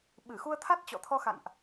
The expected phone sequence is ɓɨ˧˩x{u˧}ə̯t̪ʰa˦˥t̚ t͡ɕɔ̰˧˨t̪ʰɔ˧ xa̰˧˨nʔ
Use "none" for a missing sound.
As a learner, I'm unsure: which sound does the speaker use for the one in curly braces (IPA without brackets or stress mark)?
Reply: u˧